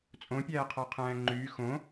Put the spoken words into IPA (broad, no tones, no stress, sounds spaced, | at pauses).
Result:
t͡sʼ õ pʲ æː qʰ ɑ qʰ æ̃ː ŋ͡ǃ yː x õ